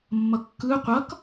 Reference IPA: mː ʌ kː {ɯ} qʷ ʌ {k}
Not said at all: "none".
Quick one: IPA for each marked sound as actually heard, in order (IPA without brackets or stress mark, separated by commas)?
ɯ, k